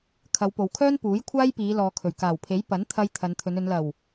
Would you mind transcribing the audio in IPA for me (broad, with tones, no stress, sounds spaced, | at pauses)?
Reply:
kʰ ɐ˨˧ w p o˨ w kʰ œː˥ n p uː˨˥ j kʷʰ aː˥ j p iː˨˧ l ɔː˨ kʰ ɵ˨˩ ɥ k aː˨˩ w pʰ e˨˥ j p ɐ˨˥ n t̪ʰ ɐ˧ j t̪ʰ ɐ˨˧ n t̪ʰ ɵ˨˧ n ɵ˨˧ n l ɐ˨˩ w